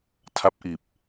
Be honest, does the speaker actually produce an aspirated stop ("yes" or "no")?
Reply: yes